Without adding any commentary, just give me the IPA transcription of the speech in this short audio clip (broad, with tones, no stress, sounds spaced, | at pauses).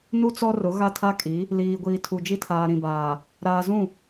n u˦ t͡s ɔ˦ r ʊ˨˦ ɣ a˦ tʰ a˦ kʼ i˨˦ | l iː˨ ɡʷ iː˨ tʰ u˨ d͡ʒ i˦ tʰ aː˨ ɾ ĩ˨ b aː˨ | ɾ aː˨ z ũ˦˨